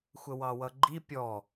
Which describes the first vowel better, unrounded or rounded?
unrounded